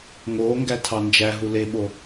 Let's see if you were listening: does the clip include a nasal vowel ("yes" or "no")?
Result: no